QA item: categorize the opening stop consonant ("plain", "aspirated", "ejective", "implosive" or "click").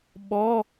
implosive